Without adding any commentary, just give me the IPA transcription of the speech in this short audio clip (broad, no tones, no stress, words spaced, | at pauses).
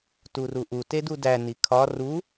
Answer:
turuʔu tedudæ nikʰɒ ru